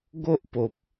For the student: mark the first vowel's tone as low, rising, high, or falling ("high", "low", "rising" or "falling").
high